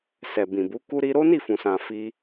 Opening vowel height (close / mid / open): mid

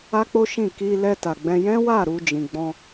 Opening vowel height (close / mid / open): open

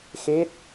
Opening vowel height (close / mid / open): mid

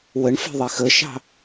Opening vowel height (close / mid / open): mid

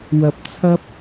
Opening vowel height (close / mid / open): open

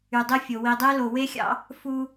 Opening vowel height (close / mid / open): close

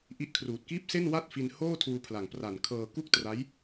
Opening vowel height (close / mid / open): close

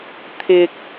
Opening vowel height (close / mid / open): close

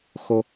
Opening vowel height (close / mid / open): mid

